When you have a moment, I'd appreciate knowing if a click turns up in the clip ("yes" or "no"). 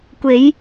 no